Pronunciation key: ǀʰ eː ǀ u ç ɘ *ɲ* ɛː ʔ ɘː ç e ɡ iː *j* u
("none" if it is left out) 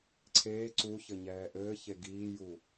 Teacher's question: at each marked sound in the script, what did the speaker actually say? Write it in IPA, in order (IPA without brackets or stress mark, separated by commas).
ɲ, j